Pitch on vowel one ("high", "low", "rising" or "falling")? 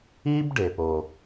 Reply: high